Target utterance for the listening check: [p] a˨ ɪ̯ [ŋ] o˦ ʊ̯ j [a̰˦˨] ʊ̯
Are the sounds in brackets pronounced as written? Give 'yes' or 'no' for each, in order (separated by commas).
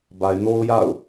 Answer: no, no, yes